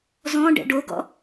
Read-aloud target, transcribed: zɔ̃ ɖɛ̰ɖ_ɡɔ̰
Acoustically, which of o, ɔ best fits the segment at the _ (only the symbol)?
o